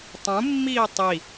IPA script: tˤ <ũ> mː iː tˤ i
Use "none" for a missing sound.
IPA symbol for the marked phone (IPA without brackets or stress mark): ũ